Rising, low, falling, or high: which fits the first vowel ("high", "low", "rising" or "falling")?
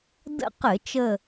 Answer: falling